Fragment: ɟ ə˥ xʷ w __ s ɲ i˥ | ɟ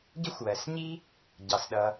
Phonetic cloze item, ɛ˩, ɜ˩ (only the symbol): ɜ˩